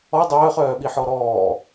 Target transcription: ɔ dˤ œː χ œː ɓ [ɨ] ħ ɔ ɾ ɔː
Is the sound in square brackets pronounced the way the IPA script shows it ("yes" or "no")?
no